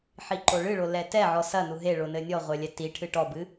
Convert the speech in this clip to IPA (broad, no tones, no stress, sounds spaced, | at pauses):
ħ i ǃ o ɭ ɨ ɭ o l ɛ t ɛ ʕ ɔ s ɐ n u ɦ e ɭ o n ɘ nʲ ɔ ʁʷ ɛ lʲ ɛ t i ʈʰ ɨ ʈ ɔ b ɨ